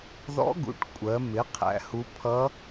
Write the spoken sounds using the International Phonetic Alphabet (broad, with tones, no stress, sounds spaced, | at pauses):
ð ɔ̰˧˥ ɡ ṵ˩˧ ʈ kʷʼ ɜ˩˧ m ɪ˩˧ qʰ æ̰˩˧ h u˧˥ pʰ ʌ˧˥